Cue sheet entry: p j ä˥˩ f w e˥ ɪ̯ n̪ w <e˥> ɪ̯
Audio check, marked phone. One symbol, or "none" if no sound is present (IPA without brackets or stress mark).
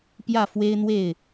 e˥˩